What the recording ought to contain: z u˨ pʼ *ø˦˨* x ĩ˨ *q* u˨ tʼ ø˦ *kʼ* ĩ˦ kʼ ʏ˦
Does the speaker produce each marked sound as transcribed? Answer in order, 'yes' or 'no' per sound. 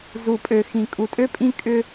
no, no, no

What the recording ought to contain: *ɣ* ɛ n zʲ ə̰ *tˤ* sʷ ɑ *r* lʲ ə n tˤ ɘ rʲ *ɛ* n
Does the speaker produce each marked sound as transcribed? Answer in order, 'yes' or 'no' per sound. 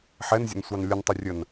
no, no, no, no

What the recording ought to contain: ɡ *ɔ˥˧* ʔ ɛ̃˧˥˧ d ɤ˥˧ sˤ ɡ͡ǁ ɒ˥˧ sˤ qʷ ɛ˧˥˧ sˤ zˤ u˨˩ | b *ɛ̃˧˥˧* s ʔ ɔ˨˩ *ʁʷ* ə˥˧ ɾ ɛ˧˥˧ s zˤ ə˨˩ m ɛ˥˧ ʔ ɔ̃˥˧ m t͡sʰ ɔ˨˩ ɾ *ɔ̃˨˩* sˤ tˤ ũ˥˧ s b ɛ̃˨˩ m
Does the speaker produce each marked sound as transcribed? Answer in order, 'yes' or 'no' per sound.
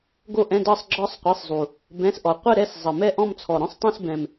no, yes, no, no

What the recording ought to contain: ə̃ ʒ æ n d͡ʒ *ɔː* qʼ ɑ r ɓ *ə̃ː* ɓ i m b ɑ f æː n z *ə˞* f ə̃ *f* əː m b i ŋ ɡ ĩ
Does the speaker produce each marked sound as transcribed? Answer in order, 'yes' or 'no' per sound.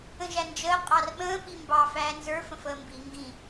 no, yes, yes, yes

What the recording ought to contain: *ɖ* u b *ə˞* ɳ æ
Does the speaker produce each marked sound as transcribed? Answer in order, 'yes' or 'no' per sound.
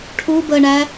no, no

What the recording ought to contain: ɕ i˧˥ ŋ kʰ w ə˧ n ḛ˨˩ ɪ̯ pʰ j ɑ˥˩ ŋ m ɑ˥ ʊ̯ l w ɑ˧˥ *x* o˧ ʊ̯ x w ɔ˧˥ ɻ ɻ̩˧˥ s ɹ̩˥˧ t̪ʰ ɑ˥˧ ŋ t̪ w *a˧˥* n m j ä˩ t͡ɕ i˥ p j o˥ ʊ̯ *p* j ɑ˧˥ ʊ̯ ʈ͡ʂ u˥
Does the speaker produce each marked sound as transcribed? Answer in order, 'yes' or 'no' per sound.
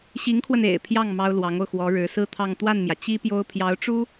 no, no, no

